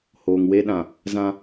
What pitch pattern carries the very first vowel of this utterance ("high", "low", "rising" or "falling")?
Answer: low